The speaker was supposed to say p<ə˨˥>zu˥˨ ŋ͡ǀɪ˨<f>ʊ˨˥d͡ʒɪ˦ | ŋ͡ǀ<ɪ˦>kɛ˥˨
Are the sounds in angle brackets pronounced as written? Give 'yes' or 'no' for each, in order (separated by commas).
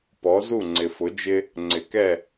no, yes, no